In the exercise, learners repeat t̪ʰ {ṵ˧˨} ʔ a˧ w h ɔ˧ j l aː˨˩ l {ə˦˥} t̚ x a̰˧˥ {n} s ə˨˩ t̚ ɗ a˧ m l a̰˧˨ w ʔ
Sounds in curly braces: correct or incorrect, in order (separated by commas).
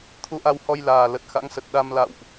incorrect, incorrect, incorrect